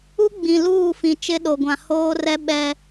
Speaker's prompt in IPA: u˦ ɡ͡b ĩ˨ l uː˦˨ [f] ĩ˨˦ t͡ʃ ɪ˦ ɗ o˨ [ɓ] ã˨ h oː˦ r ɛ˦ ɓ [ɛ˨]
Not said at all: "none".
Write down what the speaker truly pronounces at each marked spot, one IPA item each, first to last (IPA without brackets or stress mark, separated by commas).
f, ɡʷ, ɛ˦